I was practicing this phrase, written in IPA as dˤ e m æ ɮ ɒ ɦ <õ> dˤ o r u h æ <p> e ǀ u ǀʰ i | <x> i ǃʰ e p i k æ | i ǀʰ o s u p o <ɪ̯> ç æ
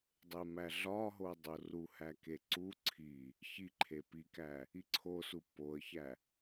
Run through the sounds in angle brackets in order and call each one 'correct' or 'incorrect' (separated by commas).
incorrect, incorrect, incorrect, incorrect